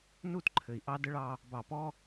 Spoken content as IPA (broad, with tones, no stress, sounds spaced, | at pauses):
n u˦˨ t ǃʰ ɘ˨ i̯ ʔ ɑ˦ d ə˦ ɭ ɑ˦ | b ɑ˨ p ɔ˦